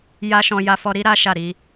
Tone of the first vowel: high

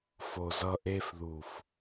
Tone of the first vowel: low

